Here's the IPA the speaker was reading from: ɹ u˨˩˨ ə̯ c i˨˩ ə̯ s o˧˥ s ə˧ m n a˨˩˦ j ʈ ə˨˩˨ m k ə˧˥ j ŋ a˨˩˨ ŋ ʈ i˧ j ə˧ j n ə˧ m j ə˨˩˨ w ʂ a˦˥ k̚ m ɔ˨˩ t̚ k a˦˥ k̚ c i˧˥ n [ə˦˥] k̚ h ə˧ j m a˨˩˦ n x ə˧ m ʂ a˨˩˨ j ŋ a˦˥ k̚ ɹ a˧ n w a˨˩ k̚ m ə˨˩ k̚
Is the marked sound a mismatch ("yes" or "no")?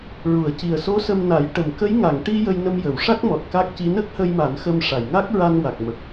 no